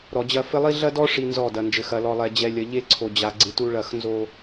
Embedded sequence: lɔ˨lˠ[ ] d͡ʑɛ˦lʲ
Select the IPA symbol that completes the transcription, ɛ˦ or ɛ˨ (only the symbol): ɛ˨